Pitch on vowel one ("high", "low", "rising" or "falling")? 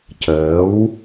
rising